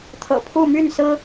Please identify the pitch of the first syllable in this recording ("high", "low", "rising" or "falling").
low